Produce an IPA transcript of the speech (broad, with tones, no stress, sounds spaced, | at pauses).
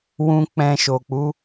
w ũ˨ k͡p ɛ̃˨ ʃ o˨ k͡p u˨˦